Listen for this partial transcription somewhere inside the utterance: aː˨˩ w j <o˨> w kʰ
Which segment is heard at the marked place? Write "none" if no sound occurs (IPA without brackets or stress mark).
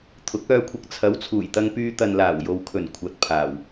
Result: o˨